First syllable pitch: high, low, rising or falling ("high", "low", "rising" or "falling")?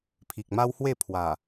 low